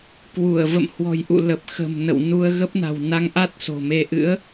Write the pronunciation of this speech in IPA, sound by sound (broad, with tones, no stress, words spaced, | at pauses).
kwu˧˩ə̯ və̰˧˨mhwɔ̤˨˩jʔṵ˧˨ lə˨˩p̚ xə̤˨˩mnə̰˧˨w nu˧ə̯ɣə˦˥p̚na̤˨˩w na˧ŋʔa˦˥t̚ so̤˨˩me˧ ʔɨ̰˧˥ə̯